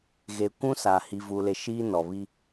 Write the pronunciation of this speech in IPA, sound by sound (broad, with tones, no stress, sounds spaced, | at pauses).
ɣ e˨ kʷ ũ˦ s a˨ h iː˨ v u˨ l e˨ ʃ iː˦ n ɔ˨ β i˦